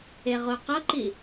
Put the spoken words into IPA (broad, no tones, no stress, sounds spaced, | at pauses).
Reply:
e ʁ o q ʌ ǃ i